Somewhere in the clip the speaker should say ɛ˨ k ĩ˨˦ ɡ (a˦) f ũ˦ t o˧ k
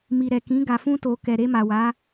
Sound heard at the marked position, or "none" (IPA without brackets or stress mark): a˧